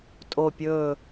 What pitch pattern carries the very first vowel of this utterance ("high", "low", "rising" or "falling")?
falling